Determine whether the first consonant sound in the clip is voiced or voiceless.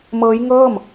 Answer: voiced